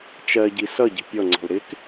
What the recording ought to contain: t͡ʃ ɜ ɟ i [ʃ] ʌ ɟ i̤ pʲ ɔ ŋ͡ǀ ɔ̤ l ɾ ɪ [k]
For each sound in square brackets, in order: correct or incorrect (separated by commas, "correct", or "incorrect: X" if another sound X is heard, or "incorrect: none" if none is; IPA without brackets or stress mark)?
incorrect: s, correct